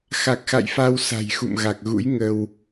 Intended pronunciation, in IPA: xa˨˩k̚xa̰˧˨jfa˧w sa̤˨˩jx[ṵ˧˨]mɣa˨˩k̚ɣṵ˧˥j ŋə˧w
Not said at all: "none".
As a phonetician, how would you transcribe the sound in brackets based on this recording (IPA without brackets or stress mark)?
ṵ˧˨